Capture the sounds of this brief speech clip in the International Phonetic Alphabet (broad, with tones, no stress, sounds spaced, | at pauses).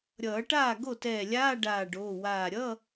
ɾʲ ʌː˨˩˦ ʈ aː˥˩ ɡ o˥˩ t ɛː˧˩ lʲ aː˧˥˧ ɖ aː˧˩ ɖ oː˩˧˩ w aː˧˩ ɾʲ ʌ˧˥˧